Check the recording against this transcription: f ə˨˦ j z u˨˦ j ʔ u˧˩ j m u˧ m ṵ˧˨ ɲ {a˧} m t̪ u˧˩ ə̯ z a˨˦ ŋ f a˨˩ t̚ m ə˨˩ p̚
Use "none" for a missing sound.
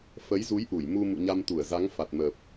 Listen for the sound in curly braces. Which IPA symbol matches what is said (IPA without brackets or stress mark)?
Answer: a˧